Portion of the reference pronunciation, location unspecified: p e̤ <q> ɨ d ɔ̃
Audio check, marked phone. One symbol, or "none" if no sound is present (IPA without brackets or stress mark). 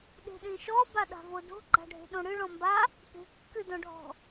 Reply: kː